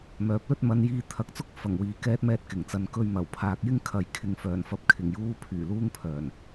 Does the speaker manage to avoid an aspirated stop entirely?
no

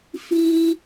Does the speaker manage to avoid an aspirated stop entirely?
yes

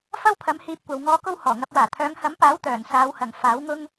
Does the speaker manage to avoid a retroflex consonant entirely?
yes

